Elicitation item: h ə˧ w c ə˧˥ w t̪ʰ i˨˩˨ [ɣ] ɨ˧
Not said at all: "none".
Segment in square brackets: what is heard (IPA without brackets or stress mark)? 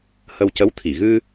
ɣ